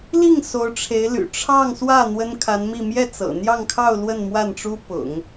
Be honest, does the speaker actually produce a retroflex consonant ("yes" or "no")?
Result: yes